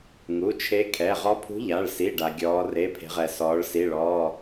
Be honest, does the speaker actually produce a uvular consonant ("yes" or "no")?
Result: yes